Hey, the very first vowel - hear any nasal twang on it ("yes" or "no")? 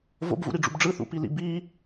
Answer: no